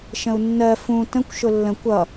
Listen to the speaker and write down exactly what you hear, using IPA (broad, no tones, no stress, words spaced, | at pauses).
ʃə̃u̯nːɜ fũ tə̃kʷ ʃʊlːə̃ kʷʌ